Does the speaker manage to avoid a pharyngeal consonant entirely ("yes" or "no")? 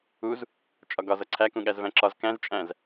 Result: yes